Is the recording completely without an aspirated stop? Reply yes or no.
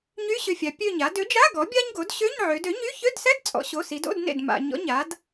yes